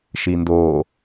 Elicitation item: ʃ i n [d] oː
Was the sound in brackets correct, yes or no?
yes